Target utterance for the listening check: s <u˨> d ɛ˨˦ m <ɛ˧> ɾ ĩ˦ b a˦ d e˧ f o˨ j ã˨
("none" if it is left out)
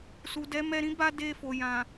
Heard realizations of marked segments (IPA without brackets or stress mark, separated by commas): u˨, ɛ˧